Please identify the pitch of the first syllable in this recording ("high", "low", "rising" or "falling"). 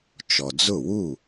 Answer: low